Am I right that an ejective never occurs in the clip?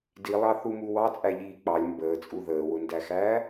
no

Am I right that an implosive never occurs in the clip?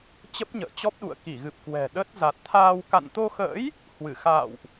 no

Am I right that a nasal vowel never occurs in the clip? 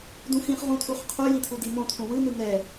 no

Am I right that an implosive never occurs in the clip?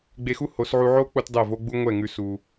yes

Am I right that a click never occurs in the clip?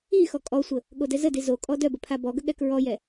yes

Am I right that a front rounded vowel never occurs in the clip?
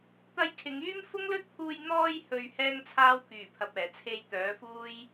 no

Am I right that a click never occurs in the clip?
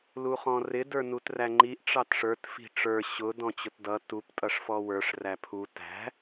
no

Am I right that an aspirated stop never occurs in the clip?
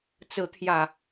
no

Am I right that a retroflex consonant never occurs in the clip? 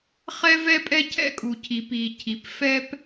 yes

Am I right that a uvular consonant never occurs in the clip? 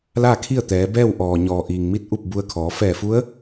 yes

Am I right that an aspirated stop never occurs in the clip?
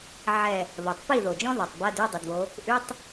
yes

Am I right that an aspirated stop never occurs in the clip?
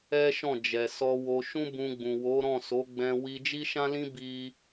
yes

